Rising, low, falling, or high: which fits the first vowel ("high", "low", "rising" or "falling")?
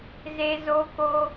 high